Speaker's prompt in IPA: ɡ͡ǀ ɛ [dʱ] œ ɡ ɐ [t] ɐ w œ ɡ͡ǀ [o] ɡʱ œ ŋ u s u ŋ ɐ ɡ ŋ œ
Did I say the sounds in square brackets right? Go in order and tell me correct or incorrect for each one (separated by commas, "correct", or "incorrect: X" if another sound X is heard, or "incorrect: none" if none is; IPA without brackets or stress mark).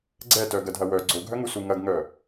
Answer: incorrect: t, incorrect: dʱ, correct